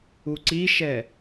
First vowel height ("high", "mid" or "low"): high